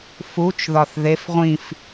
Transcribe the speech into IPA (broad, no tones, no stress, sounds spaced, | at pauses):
f u t͡ʃ ð ɒ θ ð e f ʁʷ ĩ f